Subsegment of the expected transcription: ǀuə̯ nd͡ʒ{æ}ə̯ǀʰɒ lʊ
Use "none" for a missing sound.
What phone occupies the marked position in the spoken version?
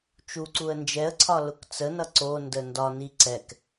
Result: ɛ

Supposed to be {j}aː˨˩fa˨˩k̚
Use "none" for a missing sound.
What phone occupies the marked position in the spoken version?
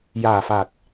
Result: j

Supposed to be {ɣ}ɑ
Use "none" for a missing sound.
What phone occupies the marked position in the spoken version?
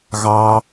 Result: ɣ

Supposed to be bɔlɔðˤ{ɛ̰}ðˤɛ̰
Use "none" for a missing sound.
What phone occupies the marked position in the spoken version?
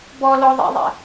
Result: ḛ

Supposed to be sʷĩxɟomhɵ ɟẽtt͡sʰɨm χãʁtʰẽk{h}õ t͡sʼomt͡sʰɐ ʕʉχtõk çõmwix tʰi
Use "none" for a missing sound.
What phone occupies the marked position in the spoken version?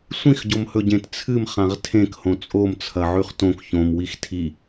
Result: h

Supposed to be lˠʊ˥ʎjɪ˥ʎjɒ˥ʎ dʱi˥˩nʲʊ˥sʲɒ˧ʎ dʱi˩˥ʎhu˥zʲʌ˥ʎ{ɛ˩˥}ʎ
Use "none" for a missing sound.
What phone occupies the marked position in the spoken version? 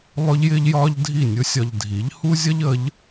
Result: ə˩˥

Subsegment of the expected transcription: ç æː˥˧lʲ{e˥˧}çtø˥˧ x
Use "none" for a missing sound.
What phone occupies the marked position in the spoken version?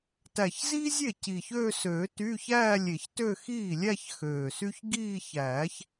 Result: e˨˩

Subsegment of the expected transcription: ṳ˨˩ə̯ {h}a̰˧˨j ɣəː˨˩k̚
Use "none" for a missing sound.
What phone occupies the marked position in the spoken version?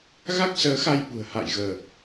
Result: h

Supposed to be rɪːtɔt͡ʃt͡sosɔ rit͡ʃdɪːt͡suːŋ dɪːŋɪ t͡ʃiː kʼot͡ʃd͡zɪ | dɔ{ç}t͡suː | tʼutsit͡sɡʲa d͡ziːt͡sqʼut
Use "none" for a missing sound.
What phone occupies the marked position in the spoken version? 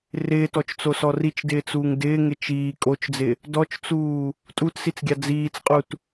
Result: t͡ʃ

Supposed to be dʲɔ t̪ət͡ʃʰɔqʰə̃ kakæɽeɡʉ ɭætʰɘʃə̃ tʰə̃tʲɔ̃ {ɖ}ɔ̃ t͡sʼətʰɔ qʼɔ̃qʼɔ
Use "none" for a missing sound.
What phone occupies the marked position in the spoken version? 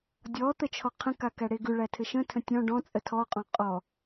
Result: ɖ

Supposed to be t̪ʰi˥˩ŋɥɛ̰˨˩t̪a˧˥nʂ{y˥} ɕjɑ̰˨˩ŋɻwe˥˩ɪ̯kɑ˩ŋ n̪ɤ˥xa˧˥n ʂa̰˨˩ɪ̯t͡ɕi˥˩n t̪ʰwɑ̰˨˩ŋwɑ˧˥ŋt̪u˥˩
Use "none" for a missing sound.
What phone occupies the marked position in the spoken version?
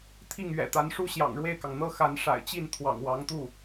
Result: u˥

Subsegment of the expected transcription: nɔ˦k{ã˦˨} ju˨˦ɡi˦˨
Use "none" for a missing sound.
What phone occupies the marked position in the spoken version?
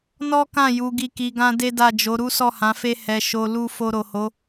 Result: ã˦˨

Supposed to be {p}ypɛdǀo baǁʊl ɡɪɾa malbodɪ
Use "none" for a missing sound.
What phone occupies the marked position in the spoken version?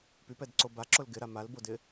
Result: p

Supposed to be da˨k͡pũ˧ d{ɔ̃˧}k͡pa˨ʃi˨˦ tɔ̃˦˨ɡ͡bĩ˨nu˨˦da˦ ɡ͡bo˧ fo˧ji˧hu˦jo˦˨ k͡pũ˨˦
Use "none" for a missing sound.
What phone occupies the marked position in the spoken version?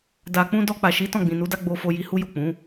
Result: ɔ˧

